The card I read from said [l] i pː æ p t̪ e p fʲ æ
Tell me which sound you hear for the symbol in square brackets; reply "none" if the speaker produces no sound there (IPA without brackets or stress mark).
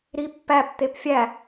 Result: ɾ